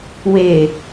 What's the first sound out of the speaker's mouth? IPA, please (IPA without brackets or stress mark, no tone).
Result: w